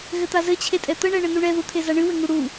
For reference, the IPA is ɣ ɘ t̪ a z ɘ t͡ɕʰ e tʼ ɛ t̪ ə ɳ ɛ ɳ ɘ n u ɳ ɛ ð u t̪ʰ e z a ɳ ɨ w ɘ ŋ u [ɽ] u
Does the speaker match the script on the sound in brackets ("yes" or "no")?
yes